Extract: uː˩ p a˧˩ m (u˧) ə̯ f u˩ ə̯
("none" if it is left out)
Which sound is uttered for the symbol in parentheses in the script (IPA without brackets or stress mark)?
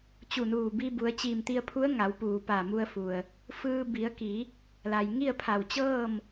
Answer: u˧